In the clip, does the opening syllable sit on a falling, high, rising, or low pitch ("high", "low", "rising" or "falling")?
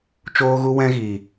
high